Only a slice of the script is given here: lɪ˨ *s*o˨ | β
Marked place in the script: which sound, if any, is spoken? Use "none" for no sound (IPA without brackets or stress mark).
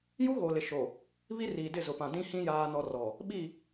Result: ʃ